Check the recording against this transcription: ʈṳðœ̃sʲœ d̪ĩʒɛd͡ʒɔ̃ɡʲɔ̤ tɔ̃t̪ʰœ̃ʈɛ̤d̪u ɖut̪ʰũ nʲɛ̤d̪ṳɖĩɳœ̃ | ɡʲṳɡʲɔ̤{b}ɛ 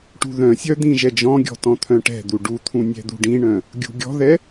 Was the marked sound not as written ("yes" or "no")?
yes